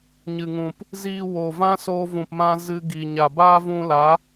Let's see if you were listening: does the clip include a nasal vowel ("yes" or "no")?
yes